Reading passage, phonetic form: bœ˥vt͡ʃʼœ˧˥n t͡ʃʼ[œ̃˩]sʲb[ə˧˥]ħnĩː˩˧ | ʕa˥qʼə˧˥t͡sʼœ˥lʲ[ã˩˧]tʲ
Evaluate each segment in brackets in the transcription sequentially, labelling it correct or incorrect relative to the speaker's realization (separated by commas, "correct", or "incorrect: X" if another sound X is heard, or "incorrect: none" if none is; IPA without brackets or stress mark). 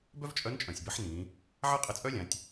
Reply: correct, correct, correct